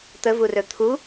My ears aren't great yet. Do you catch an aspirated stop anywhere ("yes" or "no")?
yes